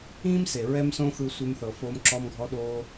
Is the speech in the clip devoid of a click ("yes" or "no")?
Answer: no